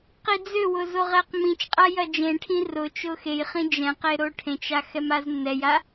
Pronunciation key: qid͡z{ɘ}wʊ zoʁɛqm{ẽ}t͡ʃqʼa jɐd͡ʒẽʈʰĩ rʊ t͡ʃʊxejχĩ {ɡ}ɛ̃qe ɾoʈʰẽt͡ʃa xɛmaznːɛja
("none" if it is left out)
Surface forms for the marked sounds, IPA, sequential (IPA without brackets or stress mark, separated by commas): ø, ĩ, d͡ʒ